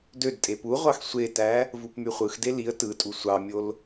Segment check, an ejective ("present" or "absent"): present